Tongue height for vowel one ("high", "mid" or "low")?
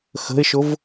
mid